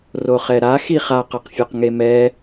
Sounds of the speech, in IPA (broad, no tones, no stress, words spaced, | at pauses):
roχɛɾa xiχa qʌqfʲoqŋemɛ